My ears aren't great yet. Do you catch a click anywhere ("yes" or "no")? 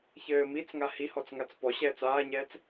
no